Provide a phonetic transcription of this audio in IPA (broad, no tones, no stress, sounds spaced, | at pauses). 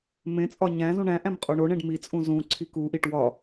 m ẽ t͡sʼ ɒ ɲ æ̃ z ũ ɳ æ̃ ʔ æ̃ m qʼ o ɳ o ɳ ẽ ɖ m i t͡sʼ ũ z ũ ǀʰ i k u ʔ i ʈ w ɒ